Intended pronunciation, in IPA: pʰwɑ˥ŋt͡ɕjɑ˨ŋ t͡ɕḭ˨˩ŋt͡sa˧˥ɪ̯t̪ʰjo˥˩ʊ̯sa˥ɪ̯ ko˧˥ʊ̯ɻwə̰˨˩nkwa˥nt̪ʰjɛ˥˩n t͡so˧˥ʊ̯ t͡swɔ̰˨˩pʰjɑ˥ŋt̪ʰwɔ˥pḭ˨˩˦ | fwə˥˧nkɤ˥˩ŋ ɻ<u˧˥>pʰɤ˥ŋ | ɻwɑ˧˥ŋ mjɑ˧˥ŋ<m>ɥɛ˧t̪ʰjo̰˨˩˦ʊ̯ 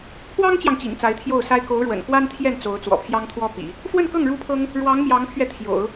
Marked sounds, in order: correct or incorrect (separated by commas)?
incorrect, incorrect